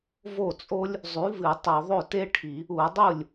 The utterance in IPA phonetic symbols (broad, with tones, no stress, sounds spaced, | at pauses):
v o˥˩ t͡sʼ o˥ lʲ | zˤ ʉ˨˥ v ɨ˧˩˧ tˤ ɵ˧˩˧ ðˤ ɵ˥˩ t e˥ ʈʰ i˧˩˧ | u˧˩˧ dˤ u˥˩ lʲ